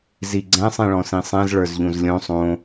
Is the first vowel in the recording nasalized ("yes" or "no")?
no